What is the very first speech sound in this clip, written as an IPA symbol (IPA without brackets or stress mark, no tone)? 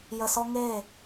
j